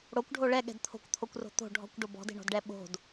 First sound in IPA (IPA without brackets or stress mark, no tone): ɽ